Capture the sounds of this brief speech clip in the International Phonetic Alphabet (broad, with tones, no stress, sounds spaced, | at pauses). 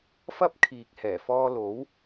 f ɐ˥ p̚ kʰ iː˨˥ k̚ h ɛː˨˩ f ɔː˧ l o˨˥ w